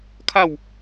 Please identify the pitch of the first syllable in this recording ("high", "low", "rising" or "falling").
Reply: falling